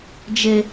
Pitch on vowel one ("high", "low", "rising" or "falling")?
high